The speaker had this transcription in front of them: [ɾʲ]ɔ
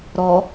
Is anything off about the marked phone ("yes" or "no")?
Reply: yes